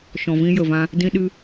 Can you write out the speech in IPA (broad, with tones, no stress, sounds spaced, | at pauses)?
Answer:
ʃ ɔ̃˨ v ĩ˧ j ə˨ v ã˧ | d ĩ˧ ɗ ɨ˧